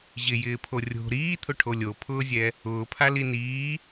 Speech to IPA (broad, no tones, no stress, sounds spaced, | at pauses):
ʑ ɪ j ɪː pʰ o rʲ o̤ ɾ iː t̪ʰ ʊ ʈʰ o lʲ o pʰ ʊː zʲ ɛ | ʊː pʰ a l i n iː